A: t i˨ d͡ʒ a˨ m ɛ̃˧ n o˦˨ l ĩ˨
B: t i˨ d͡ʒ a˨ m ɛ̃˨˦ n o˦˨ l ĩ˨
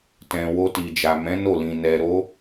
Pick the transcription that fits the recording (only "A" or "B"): B